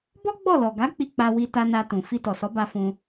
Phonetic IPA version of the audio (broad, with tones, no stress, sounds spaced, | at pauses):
b ɔ˦ ɡ͡b ɔ˦˨ l ɔ˨ ɡ a˨˦ k͡p i˧ k͡p a˧ w i˧ t a˧ n a˧ t ũ˨ f i˧ t ɔ˨ s ɔ˨˦ b a˧ f ũ˧